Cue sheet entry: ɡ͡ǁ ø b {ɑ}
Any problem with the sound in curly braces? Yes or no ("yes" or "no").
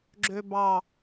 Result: no